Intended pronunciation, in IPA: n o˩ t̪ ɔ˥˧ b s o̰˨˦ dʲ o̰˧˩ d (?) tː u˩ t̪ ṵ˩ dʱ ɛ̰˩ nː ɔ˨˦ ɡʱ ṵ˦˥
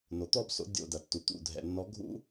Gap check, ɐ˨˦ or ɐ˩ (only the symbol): ɐ˩